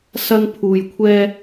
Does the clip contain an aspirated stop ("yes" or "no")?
yes